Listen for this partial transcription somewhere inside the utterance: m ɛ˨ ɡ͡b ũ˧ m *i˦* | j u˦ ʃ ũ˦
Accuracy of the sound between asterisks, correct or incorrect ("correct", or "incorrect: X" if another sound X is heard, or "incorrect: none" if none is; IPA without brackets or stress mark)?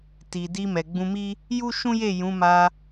correct